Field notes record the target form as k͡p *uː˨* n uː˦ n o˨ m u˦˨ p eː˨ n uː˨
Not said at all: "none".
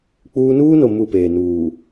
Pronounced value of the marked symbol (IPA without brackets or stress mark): uː˦